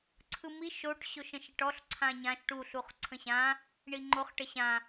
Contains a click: yes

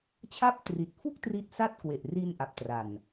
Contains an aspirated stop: yes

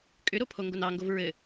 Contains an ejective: yes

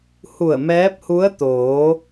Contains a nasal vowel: no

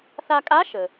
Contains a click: no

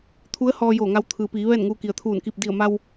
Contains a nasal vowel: no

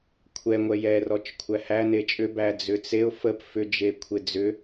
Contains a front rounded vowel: yes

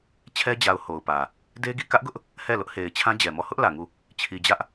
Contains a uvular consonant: no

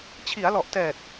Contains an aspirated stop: yes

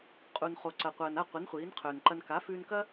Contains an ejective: yes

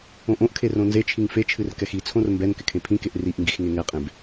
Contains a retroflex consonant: no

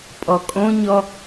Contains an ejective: yes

